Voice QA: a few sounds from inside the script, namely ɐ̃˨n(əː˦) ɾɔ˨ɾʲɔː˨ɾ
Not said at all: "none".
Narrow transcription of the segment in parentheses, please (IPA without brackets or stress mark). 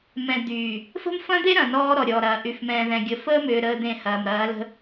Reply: ɔː˦